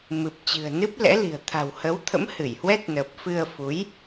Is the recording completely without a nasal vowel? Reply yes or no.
yes